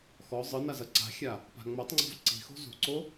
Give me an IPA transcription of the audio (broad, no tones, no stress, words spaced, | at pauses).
xɔ zˤɨ nazɐǀa̤xʲa | pa̤ŋ͡mɐtˤŋ͡ǀɔ̤v ǀi̤xo̤ zṳǀo